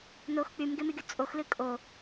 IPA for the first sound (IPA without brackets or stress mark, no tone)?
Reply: n